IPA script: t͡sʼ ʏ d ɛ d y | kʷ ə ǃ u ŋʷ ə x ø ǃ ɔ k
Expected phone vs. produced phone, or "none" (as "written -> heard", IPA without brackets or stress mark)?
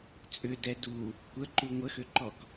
y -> u